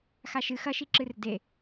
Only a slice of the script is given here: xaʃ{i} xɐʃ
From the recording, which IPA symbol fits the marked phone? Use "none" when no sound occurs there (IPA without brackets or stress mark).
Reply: ɨ